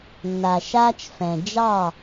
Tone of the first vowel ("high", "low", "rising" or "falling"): low